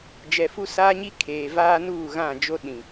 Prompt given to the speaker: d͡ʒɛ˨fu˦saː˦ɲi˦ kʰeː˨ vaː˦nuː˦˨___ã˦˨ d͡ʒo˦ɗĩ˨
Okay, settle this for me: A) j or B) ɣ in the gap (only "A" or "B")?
B